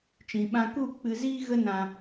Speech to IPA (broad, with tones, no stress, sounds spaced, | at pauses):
t͡ʃ ĩ˨ ɓ ã˧ k u˦˨ k͡p ɨ˧ z iː˦ ɣ ə˦ n ã˦